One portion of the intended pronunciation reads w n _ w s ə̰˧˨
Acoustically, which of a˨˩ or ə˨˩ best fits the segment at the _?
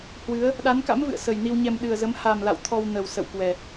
ə˨˩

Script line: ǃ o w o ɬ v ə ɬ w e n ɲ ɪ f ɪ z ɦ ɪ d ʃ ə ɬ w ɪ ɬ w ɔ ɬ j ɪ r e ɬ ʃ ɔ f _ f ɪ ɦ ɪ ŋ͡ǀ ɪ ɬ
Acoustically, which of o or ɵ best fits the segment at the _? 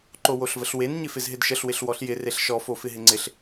o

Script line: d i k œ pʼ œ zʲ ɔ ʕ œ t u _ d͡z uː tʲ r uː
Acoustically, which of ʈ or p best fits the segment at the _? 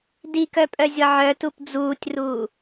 p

